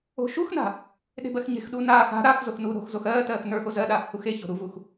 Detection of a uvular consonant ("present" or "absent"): absent